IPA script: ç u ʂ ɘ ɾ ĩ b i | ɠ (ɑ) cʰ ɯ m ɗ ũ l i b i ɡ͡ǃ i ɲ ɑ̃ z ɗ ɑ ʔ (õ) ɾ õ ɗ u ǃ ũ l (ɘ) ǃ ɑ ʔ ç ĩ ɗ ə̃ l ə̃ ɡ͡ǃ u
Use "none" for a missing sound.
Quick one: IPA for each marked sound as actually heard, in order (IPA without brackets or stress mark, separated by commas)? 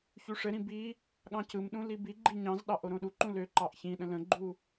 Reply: ɑ̃, o, ø